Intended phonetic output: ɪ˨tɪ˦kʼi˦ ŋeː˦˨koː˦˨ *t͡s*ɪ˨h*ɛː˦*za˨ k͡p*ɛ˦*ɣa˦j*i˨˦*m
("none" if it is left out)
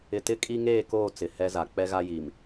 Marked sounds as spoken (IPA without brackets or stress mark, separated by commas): t͡s, ɛ˦, ɛ˦, i˨